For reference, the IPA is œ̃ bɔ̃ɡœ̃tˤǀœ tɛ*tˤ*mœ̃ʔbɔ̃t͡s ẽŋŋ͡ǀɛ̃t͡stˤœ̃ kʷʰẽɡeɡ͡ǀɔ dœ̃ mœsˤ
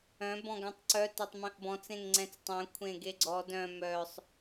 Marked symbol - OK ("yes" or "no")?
yes